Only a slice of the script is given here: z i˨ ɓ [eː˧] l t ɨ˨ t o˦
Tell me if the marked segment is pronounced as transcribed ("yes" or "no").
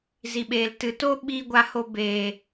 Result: no